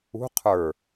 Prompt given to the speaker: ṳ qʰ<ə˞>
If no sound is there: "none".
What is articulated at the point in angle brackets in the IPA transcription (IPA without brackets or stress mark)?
ə˞